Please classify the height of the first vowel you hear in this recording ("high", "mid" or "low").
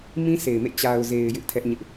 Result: high